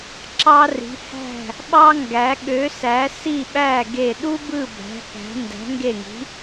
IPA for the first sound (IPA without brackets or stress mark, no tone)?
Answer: ǁ